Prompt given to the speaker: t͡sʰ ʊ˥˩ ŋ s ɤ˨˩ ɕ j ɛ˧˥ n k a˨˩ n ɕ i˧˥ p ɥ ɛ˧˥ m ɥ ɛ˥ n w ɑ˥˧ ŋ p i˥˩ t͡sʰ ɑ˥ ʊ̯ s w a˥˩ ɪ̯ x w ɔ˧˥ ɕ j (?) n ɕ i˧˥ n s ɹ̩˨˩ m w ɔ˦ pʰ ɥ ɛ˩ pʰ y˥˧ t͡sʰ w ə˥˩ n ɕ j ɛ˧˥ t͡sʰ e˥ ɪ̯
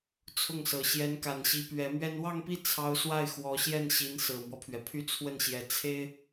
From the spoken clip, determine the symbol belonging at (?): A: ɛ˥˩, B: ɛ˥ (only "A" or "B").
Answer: A